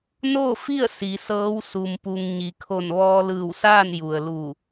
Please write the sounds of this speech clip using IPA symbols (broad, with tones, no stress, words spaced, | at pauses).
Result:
noː˥˨fi˥˨ə̯ si˩˧sɤː˧˥w su˩mpu˩ŋ ɲi˩˧kʰo˧˩n ʋɔː˧lɯː˧˩wsaː˥˨n ju˩ə̯lu˧˩